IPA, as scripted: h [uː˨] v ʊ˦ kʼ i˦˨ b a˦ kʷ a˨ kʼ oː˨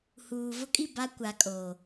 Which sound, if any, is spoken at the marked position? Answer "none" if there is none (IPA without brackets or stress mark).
uː˨